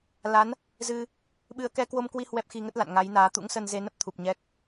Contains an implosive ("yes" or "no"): yes